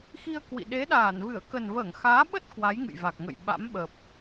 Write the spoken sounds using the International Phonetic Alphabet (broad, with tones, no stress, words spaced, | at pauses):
xi˧ə̯kwḭ˧˨ɗe˨˦ ɗaː˧˩nvɨ˧˩ə̯ kə˨˩nvəː˧˩ŋxaː˨˦ɓə˦˥t̚ kwa˨˦jŋɨ̰˧˨jva˨˩k̚ŋə̰˧˨j ɓa̰˧˥mɓə˨˩p̚